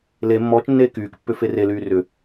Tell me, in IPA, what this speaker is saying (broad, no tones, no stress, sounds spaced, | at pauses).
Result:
l e mː ɔː t͡ʃ nː eː k yː k pː ʏ f e r e l yː r ʏ